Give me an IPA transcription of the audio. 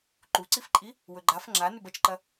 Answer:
ǃ u ǀ i f ǃʼ i | w ɵ ɡ͡ǃ a f ŋ͡ǁ a n ʉ b ɐ t͡ʃ ǃ ɐ

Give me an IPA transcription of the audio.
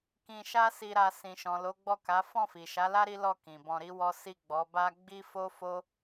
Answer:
k ĩ˧ ʃ a˦ s i˧ ɾ a˧ s ĩ˨ ʃ ɔ̃˨ l o˨˦ ɡ͡b ɔ˦˨ k a˨˦ f ɔ̃˦˨ f i˨ ʃ a˨˦ l a˦ ɾ i˦ l ɔ˦˨ k ĩ˨ b ɔ̃˧ ɾ i˦ w ɔ˦ s i˦˨ ɡ͡b ɔ˨˦ b a˦ ɡ͡b i˦ f o˦ f o˦

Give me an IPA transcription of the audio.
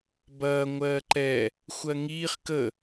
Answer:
b ɐː ŋʷ ɜː ǃ ɛ | xʷ ɜ ŋ iː χ k ə

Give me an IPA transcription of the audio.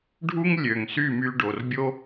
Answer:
ɖʱ u˦ ŋ lʲ ø˨ ŋ s y˦˨ m y˧ ɖ o˨ r bʲ o˦

